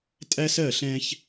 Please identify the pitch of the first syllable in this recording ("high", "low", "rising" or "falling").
high